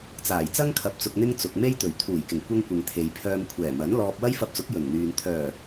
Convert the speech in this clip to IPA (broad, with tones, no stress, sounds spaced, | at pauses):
t͡s aː˨˩ j t͡s ɐ˥ ŋ kʰ ɐ˧ p̚ t͡s ʊ˧ k̚ n̪ ɪ˥ ŋ t͡s ʊ˨ k̚ m e˥ j t̪ ɵ˨˩ ɥ t̪ʰ uː˨˩ j k ɪ˨˩ ŋ kʷ ɐ˥ ŋ kʷ ɪ˨ ŋ t̪ʰ e˨ j pʰ œː˧ m kʷʰ ɛː˨˩ m ɐ˨˥ n l ɔː˧ p̚ w ɐ˥ j f ɐ˧ p̚ t͡s ʊ˨˥ k̚ j ɵ˨˩ n n̪ yː˨ n t̪ʰ œː˨˩